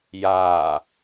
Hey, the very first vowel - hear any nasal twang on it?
no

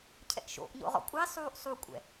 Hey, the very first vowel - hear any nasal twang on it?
no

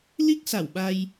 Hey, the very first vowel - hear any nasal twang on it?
no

